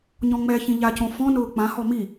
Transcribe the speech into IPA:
ɲ ɔ̃ ŋ͡m ɛ ç ĩ ʎ a c õ f ɔ̃ n ʊː k͡p ã h ɔ m i

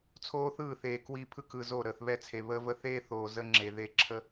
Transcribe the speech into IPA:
t͡sʰ oː˦ θ ɯː˦˨ θ eː˨ k w i˦ pʰ ɯ˦ k ɯ˨ z o˦˨ ɾ əː˨ θ β ɛ˦ t͡sʰ e˨ β əː˦ v ə˦ θ eː˦ θ oː˨ z ə˦ ŋ͡ǁ e˨ ð e˦ ǁʰ ə˦

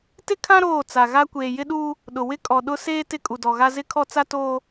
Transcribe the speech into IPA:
t ɪ˦ kʰ ã˦ ɾ oː˦˨ t͡s a˨ ɣ a˦ kʷ eː˨ j ɪ˦ ɗ uː˦ | ɗ ʊ˨ w ɪ˦ kʼ ɔ˨ ɗ ʊ˦ s eː˦ t ɪ˦ kʼ u˨ d ɔ˨ ɣ a˦ z ɪ˦ kʰ ɔ˦ t͡s a˦ t oː˦

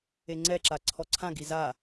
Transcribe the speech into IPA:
e ŋ͡ǀ ɛ ǁ a ǀʰ ɔ ǀʰ ã ɡ i z a

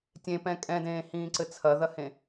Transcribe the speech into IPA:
tʲ ẽ p ɛ̃ kʼ ɛ̃ d ẽː h ĩː ǀ ɘ t͡sʰ ɐ ð ɐ h ẽ

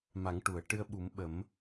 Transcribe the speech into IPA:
m a˨˩˦ ŋ ʈ u˨˩˨ ə̯ ʈ ɨ˧ ə̯ ɓ u˨˩˦ m ɓ ə˨˩˦ m

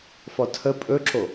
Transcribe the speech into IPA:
f ɔ tʰ ə pʼ ɵ ǁ o

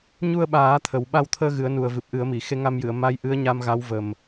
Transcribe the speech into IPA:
ɲ u˧ ə̯ ɓ aː˨˩˦ t̪ʰ ə˨˩˦ w ɓ a˧ w t̪ʰ əː˧ ɣ ɨ˨˩˦ ə̯ n u˨˩ ə̯ v ɨ˨˩ p̚ ʔ ɨ˨˩˦ ə̯ m i˨˩˨ x e˧˥ ŋ a˧ m j ɨ˨˩˨ ə̯ m a˧˥ j ʔ ɨ˧˥ ə̯ ɲ a˧ m ɣ a˧˥ w v ə˨˩ m

